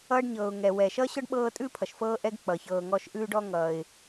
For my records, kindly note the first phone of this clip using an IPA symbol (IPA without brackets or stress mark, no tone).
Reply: ʌː